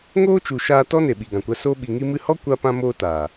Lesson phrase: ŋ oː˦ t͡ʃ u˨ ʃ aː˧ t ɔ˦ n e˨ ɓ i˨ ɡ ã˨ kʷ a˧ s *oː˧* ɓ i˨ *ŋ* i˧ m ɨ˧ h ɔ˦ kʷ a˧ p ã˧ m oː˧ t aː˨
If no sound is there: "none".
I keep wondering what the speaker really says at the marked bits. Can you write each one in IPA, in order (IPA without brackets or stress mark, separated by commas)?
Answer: oː˧, ŋ